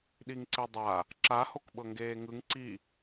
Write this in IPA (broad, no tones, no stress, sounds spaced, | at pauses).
ɗ i ŋ ǀ e dˤ a | ǁ a h o k ɓ ɤ ŋ ɡ eː ŋ ɯ ŋ ǀ i